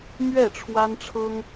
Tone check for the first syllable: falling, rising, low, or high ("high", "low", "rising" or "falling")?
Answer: falling